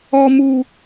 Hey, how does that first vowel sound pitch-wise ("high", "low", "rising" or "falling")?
high